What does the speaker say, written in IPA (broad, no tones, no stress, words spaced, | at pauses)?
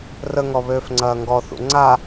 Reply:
rəŋɔ βøːfŋ͡ǀɐːŋɡɔθṵ ŋ͡ǀa